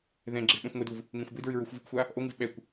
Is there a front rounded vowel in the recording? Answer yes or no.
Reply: no